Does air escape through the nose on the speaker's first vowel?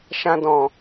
yes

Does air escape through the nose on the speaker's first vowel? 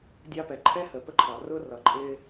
no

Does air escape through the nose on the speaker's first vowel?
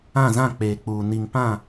yes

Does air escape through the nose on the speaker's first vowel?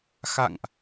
no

